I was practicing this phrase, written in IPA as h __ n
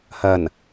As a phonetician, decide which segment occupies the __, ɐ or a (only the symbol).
ɐ